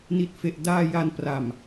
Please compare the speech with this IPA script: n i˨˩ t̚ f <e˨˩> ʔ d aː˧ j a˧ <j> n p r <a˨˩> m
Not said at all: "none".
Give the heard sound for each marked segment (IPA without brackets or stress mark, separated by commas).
e˨˩, none, a˨˩